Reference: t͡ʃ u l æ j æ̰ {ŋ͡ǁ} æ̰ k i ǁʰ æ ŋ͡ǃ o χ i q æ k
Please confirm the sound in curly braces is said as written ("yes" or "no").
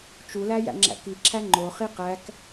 yes